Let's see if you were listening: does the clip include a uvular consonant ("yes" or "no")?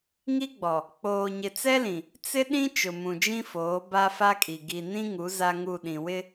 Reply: no